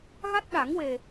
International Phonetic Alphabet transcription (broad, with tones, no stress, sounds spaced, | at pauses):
ɣ a˦˥ t̚ ɗ a˨˩˦ ŋ w e˨˩